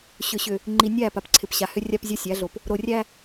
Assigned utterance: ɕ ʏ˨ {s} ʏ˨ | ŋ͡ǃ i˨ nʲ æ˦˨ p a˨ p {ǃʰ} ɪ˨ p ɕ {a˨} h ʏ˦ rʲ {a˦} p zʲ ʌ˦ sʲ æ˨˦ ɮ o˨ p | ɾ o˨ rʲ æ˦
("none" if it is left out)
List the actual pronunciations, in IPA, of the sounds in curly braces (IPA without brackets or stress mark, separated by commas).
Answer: ɕ, ǀʰ, a˨, a˦